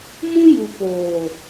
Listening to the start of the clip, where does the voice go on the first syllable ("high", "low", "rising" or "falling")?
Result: high